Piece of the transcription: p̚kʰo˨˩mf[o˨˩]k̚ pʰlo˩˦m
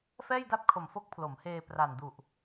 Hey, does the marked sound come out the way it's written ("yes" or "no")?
no